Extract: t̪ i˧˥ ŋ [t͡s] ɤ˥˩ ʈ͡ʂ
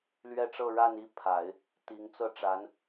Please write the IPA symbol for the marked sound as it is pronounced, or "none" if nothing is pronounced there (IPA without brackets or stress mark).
t͡s